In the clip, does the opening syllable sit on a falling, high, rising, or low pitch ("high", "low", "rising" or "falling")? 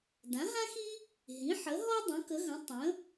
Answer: rising